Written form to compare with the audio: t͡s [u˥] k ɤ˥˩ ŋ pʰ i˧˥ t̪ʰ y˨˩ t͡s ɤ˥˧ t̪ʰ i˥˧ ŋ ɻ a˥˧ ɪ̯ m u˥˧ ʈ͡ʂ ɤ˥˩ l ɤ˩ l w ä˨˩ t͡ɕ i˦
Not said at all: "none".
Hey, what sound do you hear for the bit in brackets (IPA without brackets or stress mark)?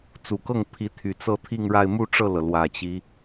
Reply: u˨˩